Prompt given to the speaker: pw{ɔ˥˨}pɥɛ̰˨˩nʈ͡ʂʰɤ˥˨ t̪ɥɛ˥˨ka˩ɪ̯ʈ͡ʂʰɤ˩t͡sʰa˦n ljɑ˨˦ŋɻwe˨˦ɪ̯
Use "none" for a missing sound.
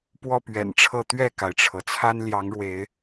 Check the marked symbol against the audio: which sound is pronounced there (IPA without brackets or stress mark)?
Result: ɔ˥˨